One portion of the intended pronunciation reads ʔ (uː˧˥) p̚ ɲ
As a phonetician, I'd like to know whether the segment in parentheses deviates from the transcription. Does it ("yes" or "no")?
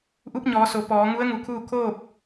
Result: yes